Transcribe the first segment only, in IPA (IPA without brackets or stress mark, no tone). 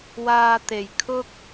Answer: w